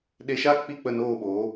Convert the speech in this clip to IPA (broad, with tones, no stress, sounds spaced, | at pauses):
ɗ e˧ ʃ a˦ k͡p i˦˨ k͡p ə˦˨ n oː˦˨ ɓ oː˨˦